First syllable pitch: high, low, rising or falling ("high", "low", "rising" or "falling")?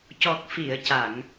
low